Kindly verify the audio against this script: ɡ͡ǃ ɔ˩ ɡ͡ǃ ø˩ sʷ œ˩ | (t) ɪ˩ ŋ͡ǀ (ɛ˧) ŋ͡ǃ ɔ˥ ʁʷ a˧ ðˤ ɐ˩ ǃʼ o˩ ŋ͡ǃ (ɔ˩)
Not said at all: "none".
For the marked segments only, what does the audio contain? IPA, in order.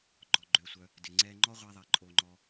d, ɛ˧, ɔ˩

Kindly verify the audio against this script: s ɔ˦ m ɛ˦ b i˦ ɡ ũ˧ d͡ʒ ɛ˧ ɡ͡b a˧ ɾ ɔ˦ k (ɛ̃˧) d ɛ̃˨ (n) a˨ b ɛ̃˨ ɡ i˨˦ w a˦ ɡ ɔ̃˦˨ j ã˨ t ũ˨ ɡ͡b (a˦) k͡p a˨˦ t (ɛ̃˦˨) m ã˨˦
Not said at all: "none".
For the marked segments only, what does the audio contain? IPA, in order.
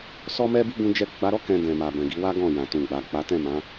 ɛ̃˧, m, a˨, ɛ̃˦˨

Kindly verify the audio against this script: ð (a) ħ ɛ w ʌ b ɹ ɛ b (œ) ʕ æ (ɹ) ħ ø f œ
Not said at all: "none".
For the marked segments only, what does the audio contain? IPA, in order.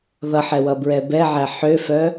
ʌ, ɛ, none

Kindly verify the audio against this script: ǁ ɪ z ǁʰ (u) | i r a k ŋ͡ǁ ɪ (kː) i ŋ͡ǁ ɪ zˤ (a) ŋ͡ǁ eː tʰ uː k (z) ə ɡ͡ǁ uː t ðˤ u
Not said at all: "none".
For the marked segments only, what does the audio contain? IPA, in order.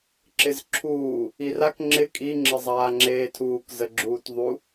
uː, kʼ, aː, z

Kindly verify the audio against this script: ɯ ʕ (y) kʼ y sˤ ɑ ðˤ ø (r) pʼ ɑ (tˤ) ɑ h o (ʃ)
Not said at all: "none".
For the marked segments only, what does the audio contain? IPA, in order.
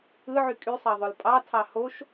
y, l, tʰ, ʃ

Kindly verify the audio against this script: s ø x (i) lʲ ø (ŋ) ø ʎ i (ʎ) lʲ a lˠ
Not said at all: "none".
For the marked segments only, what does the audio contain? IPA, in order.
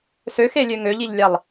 e, ŋ, ʎ

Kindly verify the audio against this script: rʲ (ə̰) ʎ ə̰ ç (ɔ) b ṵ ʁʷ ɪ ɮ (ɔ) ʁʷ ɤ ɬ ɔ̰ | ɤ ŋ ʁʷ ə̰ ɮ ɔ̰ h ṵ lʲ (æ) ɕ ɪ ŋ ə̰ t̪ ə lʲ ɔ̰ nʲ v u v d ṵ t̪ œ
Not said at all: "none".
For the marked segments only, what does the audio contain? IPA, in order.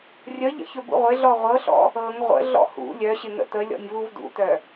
ə, ɵ, ɔ, œ

